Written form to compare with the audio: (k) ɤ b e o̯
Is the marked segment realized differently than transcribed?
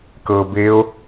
no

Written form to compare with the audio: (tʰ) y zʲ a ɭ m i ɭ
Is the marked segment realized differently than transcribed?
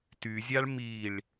yes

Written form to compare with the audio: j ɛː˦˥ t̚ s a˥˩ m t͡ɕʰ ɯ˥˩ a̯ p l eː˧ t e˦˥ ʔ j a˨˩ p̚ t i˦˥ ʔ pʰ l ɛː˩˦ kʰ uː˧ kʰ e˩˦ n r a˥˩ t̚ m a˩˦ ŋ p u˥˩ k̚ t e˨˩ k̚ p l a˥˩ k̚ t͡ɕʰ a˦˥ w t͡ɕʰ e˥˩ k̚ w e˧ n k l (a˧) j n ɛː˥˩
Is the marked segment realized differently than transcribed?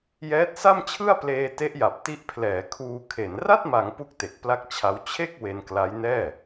yes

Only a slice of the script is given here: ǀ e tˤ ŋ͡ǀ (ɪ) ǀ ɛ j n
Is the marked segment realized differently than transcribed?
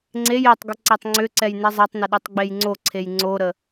yes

